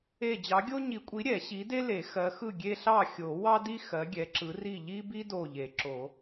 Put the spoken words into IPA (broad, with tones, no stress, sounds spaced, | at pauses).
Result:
e˧˩ d͡ʑ ɑ˨˦ ɡʲ o˥ ɲ i˨˩˦ kʷʼ i˨˦ ɾʲ ɛ˨˩˦ ɕ i˨˦ d e˥ l e˨˩˦ x ɜ˨˦ x ɯ˥˨ ɡʲ e˥ ɬ ɑ˥˨ xʲ o˨˩˦ w ɑ˥ d i˥ x ɜ˨˦ ɡʲ ɛ˨˦ ǁ ɯ˨˦ r i˥˨ ʎ i˥ b i˥ d o˧˩ ʎ e˨˩˦ ǁ o˨˩˦